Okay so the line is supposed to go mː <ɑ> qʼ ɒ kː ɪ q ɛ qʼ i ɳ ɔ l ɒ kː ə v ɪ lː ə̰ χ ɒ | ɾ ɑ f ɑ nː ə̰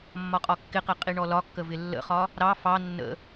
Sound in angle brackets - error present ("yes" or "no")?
yes